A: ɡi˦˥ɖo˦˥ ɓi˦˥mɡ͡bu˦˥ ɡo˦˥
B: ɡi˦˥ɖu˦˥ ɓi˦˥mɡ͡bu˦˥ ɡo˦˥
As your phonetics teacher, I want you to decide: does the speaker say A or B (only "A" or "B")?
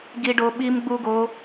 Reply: A